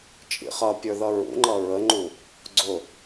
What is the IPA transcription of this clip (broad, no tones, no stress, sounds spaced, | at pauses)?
t͡ʃʼ ḭ χ ʌ pʲ ə˞ ð ʌ ɹ ṵ ŋ͡ǃ ʌ ɹ ə ŋ͡ǃ u | ɡ͡ǀ ʊ